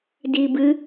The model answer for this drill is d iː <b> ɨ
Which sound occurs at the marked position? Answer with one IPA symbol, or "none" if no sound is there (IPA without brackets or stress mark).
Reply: b